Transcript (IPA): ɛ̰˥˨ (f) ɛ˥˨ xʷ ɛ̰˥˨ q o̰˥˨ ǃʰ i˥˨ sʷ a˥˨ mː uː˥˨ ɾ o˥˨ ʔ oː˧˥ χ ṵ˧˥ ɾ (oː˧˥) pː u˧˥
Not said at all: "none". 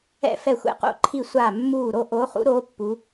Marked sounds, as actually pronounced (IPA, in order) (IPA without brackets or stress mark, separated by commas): f, oː˧˥